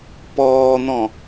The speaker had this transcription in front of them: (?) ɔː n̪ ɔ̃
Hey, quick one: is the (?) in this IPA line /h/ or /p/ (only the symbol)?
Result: p